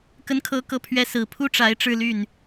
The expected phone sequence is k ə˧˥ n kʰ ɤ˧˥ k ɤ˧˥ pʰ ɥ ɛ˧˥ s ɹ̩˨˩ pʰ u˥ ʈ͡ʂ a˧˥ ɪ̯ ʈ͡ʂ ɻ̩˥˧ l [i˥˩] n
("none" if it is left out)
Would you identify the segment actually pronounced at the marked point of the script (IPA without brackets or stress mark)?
y˥˩